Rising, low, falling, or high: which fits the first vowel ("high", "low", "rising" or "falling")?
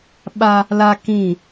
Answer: high